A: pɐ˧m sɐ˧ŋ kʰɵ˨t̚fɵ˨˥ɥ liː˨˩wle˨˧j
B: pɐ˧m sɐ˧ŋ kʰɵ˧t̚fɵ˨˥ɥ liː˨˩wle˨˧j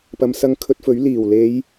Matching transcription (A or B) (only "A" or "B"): B